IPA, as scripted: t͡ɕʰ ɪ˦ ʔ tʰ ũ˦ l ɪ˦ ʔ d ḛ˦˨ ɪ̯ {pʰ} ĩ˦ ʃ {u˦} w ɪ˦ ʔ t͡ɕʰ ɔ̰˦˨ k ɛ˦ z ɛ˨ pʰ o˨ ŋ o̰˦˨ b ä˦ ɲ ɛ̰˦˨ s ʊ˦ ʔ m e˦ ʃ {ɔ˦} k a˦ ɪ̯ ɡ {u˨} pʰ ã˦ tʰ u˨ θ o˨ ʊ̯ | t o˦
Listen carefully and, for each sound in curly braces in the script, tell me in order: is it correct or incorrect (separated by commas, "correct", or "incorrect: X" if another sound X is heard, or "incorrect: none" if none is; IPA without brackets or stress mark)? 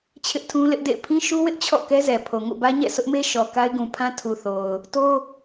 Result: correct, correct, incorrect: ɔ˨, incorrect: ũ˨